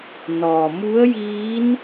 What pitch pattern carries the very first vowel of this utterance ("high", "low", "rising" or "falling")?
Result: low